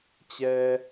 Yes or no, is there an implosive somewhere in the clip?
no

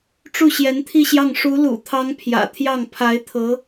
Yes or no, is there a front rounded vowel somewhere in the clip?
no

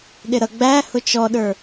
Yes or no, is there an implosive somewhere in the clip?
yes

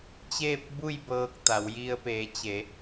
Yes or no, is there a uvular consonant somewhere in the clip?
no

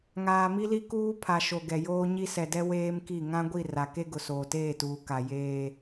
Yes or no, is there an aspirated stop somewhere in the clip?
yes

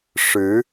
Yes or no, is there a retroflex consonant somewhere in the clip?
yes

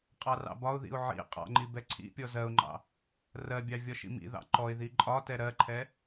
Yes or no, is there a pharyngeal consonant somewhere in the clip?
yes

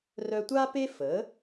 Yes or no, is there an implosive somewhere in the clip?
no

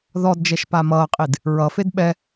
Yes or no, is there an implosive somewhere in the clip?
yes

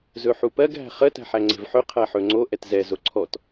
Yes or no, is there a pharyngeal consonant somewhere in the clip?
yes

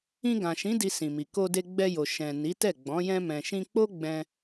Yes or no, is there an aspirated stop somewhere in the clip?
no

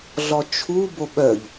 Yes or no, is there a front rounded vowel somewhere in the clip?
yes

